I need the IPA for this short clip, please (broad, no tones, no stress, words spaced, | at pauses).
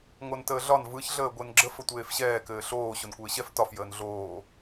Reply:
ŋontəːɮɒn vɯç ɮəːɡʷenɡ͡ǁəf ətʷeːfɕɛː kɘːɬoː ɕonkʷɘːɕɛf tɒf jəːnɮoː